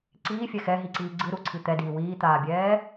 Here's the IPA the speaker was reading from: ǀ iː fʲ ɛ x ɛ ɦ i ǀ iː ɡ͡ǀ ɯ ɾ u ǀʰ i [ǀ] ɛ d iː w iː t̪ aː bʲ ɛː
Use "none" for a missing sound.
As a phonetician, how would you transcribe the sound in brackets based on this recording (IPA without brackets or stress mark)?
t̪